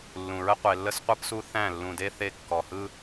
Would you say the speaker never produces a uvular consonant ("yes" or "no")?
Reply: no